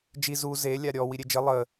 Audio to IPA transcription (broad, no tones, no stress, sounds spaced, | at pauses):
d͡ʒ i z u z e lʲ a ɾʲ ɔ w i ɾʲ e d͡ʒ ə lˠ ə